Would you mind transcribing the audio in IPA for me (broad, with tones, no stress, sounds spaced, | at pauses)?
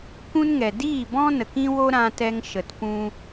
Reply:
kʷ ũ˦ n ŋ ɛ˨ d iː˦˨ b ɔ̃˦ n ə˨ k ĩ˦ w o˦ ɾ ã˧ t ɛ˧ ŋ ʃ ə˨ t p ũ˦